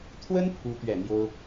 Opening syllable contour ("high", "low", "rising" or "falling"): high